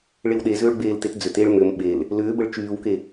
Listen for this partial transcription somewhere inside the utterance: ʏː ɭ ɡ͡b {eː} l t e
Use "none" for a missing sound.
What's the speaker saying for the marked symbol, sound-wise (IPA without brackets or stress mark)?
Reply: eː